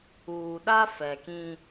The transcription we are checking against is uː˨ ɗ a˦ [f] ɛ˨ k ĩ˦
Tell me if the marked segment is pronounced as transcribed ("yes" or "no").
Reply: yes